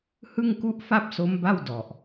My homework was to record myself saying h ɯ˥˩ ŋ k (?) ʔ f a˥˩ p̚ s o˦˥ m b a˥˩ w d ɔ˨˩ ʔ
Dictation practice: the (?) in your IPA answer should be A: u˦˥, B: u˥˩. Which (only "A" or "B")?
B